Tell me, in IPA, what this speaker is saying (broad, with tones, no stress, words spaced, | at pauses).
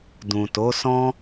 dũ˨to˨˦ sɔ̃˦